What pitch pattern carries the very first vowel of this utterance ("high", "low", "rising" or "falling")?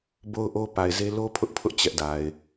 high